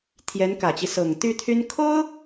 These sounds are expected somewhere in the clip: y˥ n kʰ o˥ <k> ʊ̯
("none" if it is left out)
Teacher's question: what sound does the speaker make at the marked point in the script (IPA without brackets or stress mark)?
none